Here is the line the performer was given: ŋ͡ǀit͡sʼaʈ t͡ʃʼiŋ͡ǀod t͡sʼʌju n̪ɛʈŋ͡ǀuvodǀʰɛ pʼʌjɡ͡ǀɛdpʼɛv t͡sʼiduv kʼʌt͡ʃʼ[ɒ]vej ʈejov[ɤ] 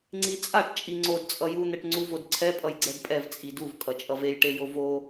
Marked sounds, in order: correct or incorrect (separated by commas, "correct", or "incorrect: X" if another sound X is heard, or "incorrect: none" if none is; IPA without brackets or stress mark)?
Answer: incorrect: ʌ, incorrect: o